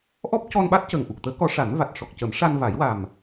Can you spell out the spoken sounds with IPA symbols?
ʔ ɔ˦˥ p̚ c ɔ˧ n ɓ a˦˥ t̚ c əː˨˩ ŋ ʔ u˨˩ k̚ t̪ əː˧˥ k ɔ˧˥ ʂ a˨˩˦ n v a˨˩ t̚ ʂ ɔ˨˩ k̚ c ə˨˩˦ m ʂ a˧ n v a˨˩˦ j w a˨˩ m

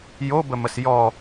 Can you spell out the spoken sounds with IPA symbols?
j o b ə m ə s j ɔ

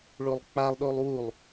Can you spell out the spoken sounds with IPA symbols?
ɭ o lˠ k͡p a lˠ ɗ o lˠ w u lˠ

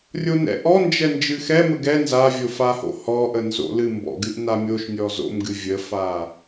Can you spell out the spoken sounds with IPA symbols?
rʲ o n ɛ̰ ʔ ɔ n d͡ʒ ɛ n d͡ʒ ɨ x ɛ m ə ɡ ɛ n z a vʲ o f a h o̰ h ɔ ʔ ə n z o̰ l ɨ m b ɔ̰ ɡ ɨ ʔ n a mʲ o ʃ nʲ ɔ z o̰ m ɡ ɨ vʲ ə f a

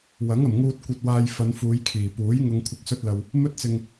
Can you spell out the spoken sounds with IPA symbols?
w ɐ˨˥ ŋ ɐ˨˩ m ŋ uː˧ t̚ kʷ ɐ˧ t̚ w aː˧ j f ɐ˨˧ n f uː˨˧ j kʰ iː˨˩ p uː˨˥ j ŋ ʊ˨ ŋ kʷʰ ɪ˨ k̚ s ɵ˧ t̚ l ɐ˨ w | m ɵ˥ t̚ t͡s ɪ˧ ŋ

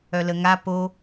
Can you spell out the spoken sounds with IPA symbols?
œ l ə ŋ a p o

